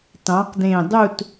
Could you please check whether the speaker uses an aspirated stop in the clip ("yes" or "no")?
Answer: no